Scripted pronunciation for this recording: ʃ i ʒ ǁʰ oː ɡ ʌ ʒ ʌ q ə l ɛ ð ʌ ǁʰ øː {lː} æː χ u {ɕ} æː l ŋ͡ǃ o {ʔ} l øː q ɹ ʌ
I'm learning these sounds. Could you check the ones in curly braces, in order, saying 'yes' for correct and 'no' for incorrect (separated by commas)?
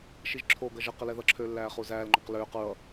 yes, no, no